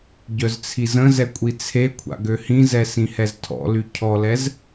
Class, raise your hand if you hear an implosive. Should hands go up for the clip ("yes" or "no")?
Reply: no